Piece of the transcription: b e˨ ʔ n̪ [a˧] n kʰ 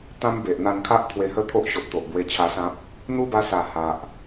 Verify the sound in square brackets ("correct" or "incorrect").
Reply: correct